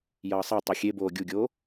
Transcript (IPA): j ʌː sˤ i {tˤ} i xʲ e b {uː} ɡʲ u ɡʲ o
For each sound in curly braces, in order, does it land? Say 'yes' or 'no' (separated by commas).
yes, no